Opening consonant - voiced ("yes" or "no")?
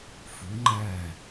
no